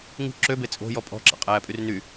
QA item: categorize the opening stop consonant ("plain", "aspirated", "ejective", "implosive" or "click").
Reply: click